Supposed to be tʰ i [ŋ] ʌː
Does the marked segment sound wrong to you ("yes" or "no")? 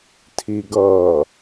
yes